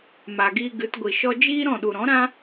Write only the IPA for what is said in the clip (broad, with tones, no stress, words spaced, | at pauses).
ma˨ɡiː˧ɡɨ˨˦t ɡʷi˨ʃɔ˧ d͡ʒiː˦ɾɔ̃˦˨ ɗu˨ɾɔ̃˨˦ɾã˦